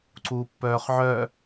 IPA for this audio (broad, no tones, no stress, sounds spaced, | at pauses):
ǀ uː pː œː χ ʕ œ